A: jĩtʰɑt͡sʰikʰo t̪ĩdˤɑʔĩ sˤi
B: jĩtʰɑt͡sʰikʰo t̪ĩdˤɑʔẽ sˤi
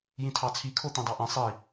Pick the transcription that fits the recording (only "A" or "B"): A